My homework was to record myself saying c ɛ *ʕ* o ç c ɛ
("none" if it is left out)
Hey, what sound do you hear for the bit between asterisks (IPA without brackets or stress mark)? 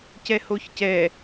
h